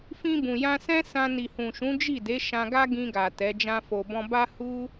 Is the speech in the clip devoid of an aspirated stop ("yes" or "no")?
yes